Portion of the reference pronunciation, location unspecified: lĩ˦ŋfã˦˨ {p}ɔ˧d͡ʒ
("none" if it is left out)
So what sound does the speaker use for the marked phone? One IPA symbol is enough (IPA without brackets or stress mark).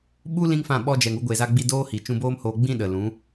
ɓ